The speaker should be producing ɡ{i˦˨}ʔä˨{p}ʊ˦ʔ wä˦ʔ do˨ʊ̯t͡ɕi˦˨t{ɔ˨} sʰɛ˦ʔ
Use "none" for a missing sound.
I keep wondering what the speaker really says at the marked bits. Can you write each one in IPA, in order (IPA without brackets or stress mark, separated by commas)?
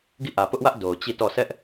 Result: i˦˨, p, ɔ˦˨